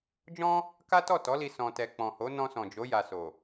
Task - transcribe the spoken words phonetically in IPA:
d͡ʒ ɔ̃˦ | k a˦ t ɔ˦˨ t ɔ˨˦ l i˧ s ɔ̃˧ t ɛ˧ k͡p ɔ̃˨ h o˨˦ n ɔ̃˧ s ɔ̃˨ d͡ʒ o˨˦ j a˧ s o˨

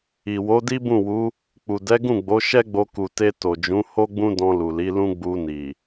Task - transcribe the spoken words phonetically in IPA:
i˨ w o˨˦ d i˦ b ũ˦˨ w u˨˦ | k͡p u˨ d ɛ˨˦ ɡ ũ˦˨ ɡ͡b o˨˦ ʃ ɛ˦ ɡ͡b o˧ k u˨ t e˧ t o˨ d͡ʒ ũ˨˦ h o˦ ɡ͡b ũ˦ d ɔ̃˧ l u˨ l i˨˦ l ũ˦ ɡ͡b u˧ n i˨

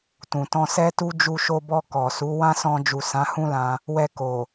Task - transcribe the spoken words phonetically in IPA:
t ũ˨ t ɔ̃˧ s ɛ˦ t u˦ d͡ʒ u˧ ʃ o˧ b ɔ˧ k ɔ˨ s u˨˦ w ã˦ s ɔ̃˧ d͡ʒ u˨ s ã˨˦ h ũ˦ l ã˧ | w ɛ˧ k o˨

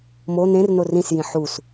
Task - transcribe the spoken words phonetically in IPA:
m o n̪ ẽ r n o r ĩ s j ĩ ħ u s

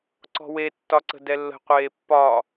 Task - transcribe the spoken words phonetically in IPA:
ǀ ɔ̤ w e tː ɒ ǀ ə̤ d ɛ lː ə̤ qʷ eː pː ɒ

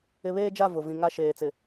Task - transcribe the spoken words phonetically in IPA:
ɪ˨ β eː˦ d͡ʒ a˦˨ v ʊ˨ v ĩ˨ ŋ a˦ ʃ eː˨ t͡s ɪ˨

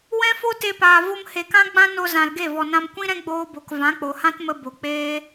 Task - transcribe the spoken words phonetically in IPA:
w ɛ̃˦ f o˦ t e˧ p aː˨ v o˧ m h e˨ k ã˦ ɡ͡b ã˦ n o˧ z ã˨ l ɡ e˦˨ v ɔ˨ n ã˧ m kʷ ĩ˦ ɾ ɛ̃˦ ɡ͡b oː˧ b o˨ k v ã˨˦ k͡p o˨ h ã˦ t m ə˧ b o˨ k͡p eː˦

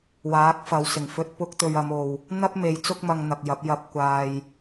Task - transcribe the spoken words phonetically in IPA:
w aː˨˥ k̚ f ɐ˨˧ w s ɪ˨˩ ŋ f ɵ˧ t̚ p ʊ˥ k̚ t̪ ɵ˧ ɥ ɐ˨˧ m o˨ w | n̪ ɐ˥ p̚ m e˨˧ j t͡s ʊ˥ k̚ m ɐ˧ ŋ n̪ ɐ˨ k̚ j ɐ˨˥ p̚ j ɐ˧ p̚ kʷ aː˧ j

